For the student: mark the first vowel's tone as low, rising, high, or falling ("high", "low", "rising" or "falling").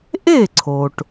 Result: falling